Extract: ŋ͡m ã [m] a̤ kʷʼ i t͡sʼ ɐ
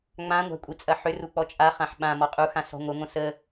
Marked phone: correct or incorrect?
incorrect